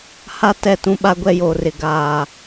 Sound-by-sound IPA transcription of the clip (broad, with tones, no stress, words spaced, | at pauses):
ha˦ tɛ˦˨tũ˦ ɓa˦ɡʷɛ˦joː˨rɪ˨ ɡaː˨